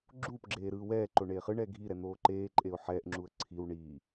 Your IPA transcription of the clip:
ɡ͡ǁ uː p ɡ͡ǁ eː ɾ ɯː w ɛː ǃ o ɳ eː χ ɯ ɳ ɛː ɡʱ i ɾ ɛ n̪ oː ǃ eː ǃʼ e ʊ̯ ħ ɛː ʔ ŋ͡ǁ u ə̯ ǀʰ i w ɳ iː

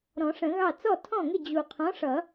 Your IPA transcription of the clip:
ɾ ɔ̃˨˩˦ ʂ ə̃˨˩˦ ɣ ɑ˥˩ t͡s ɔ˥˩ tʰ ɔ̃˥˩ ŋ ɪ˥˩ d͡ʑ u˨˩ qʰ ɔ̃˨˥ ʂ ʌ˨˩˦

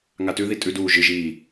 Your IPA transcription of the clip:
ŋ a t ʉ ð i tʼ ʉ d uː ʒ ɨ ʒ iː

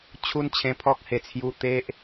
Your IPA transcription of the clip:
t͡ɕʰ u˦ n t͡ɕʰ ẽ˧ pʰ ɔ˦ k̚ h e˨˩ t͡sʰ j u˧ t̪ e˦ ʔ

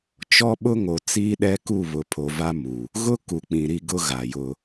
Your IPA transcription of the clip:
t͡ʃ ɔ˦ ɓ ʊ˦ ŋ o˨ t͡s iː˦ ɗ ɛ˦ k u˦˨ β ʊ˨ pʰ o˨ v a˦ m u˨ | ɣ ʊ˦ k u˨ k͡p ĩ˨ ɾ i˦ ɡ ʊ˦ ɣ a˨ j ʊ˦

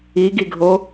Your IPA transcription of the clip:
i ɡ i ɡʱ o

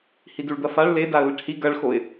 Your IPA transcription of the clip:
h i d u ɭ d̪ ɐ f a ɭ l e d a ə̯ l ɨ ʈ h i ɡ ɐ ɭ x o ɪ̯

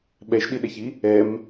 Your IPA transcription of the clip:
ɓ ɛ ʃ ɗ i ɗ ɛ ç i | ɛ m

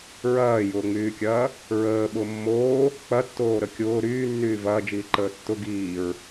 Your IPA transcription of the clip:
ɹ ɐː j ʊː ŋ͡m yː kʲ ɐː | ɹ əː ɓ ʊ mː oː | k͡p ɐ tː oː ɾ ə kʲ ʊː ɾ yː nː yː v ɐː d͡ʒ iː ǃ əː tː ʊ ɡ iː ɹ

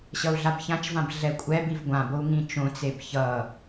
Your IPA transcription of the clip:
ɕ ʌ u̯ ɮ a b ç ã t͡ʃ v ã b ɮ ɛ kʷʼ ɛ b i v ɡʷ ã b o u̯ ŋ ĩ t͡ʃ õ t͡s e b ç ʌ

